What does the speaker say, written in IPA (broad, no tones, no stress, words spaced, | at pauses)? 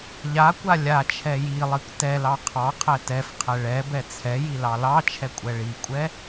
ʎakʷa lʲat͡ʃʰɛ jilˠikʷ tɛlɑ qʰɑqʰɛ tɛf qʰɛɭɛbɛ t͡sʰɛji lɑlɑt͡ʃʰɛ kʷʼɛɭikʷʼɛ